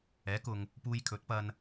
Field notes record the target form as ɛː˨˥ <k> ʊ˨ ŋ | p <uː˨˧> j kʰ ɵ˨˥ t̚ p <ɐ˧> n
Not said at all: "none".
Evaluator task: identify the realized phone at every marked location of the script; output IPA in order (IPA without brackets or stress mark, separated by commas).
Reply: k, uː˧, ɐ˧